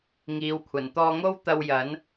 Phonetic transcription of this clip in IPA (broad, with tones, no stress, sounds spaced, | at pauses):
ŋ iː˨˧ w kʷʰ ɐ˨˩ n t̪ ɔː˧ ŋ o˥ w t̪ ɐ˧ w j ɐ˨˥ n